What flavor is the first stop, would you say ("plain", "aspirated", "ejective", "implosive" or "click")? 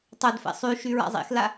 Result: plain